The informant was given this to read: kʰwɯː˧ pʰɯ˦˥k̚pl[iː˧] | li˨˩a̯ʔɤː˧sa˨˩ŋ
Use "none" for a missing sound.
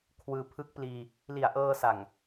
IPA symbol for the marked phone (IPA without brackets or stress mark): iː˧